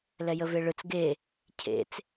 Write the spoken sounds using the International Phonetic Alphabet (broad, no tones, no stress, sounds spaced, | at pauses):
l ɛ j ə v e ɭ ɯ t͡s ɡ e | cʰ ḛ t͡s